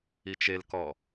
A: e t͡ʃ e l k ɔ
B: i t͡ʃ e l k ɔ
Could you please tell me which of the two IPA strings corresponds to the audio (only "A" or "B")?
B